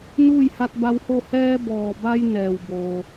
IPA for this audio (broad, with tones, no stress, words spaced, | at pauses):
nuː˥˨jha˧t̚ba˧who˥˨ hɛː˧bɔː˩ba˧j nɛː˩wboː˩